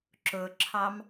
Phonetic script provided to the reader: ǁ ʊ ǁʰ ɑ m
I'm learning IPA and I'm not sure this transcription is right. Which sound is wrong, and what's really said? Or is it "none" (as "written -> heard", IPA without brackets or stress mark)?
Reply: none